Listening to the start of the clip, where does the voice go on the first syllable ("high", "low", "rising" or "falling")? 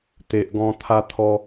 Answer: low